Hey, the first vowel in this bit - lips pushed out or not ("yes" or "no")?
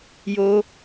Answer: yes